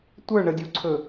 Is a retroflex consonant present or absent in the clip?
present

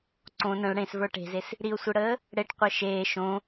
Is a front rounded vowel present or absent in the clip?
absent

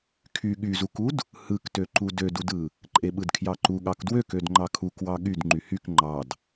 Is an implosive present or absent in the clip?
present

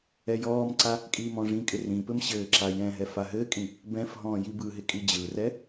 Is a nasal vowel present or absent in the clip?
present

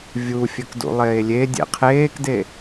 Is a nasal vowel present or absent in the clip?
absent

